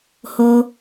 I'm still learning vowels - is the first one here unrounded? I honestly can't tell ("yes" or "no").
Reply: no